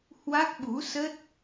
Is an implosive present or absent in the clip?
present